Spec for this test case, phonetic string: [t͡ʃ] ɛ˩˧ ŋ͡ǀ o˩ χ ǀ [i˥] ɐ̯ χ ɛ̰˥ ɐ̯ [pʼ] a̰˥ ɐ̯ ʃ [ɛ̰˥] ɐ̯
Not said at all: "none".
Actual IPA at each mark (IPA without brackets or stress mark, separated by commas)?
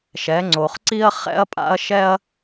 ʃ, i˥, pʼ, ɛ˥